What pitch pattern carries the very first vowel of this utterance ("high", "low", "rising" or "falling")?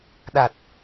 low